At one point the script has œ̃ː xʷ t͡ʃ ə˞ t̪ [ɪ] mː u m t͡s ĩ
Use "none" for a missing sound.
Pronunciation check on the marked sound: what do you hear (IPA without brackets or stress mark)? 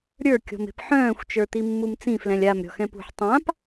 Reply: i